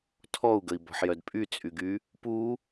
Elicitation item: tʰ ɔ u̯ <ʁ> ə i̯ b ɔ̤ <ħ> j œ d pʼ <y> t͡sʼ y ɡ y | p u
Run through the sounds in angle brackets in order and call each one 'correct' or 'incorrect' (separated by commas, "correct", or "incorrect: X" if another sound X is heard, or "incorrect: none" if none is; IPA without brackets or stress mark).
incorrect: ɡ, correct, correct